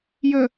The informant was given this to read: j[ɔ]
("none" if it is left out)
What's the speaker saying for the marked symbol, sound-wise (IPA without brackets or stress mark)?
ə